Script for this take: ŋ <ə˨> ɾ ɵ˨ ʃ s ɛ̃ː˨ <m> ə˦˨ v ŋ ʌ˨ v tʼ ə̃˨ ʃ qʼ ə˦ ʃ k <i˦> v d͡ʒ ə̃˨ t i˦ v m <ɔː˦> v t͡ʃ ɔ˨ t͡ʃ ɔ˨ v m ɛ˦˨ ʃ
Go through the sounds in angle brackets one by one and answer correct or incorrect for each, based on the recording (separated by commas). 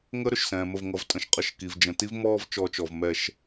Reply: incorrect, correct, incorrect, correct